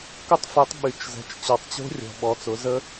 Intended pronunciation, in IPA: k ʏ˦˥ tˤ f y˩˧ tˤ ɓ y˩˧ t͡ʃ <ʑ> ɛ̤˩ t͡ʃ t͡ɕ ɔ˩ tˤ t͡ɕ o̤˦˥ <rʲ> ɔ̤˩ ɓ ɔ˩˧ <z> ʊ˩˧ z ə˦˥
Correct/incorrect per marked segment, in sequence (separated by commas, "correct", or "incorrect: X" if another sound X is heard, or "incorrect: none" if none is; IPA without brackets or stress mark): incorrect: z, correct, incorrect: t͡s